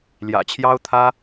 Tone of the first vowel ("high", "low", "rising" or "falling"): low